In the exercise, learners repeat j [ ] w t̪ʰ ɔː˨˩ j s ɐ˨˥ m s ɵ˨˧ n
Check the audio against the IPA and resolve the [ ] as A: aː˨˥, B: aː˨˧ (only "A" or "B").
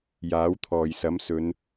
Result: A